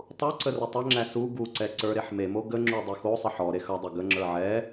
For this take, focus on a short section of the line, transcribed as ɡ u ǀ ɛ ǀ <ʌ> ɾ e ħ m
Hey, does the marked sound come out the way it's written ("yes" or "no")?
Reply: no